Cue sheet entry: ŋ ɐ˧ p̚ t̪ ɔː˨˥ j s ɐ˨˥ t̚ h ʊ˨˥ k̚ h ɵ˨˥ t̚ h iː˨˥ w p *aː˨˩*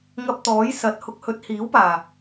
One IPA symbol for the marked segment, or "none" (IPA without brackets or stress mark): aː˨˩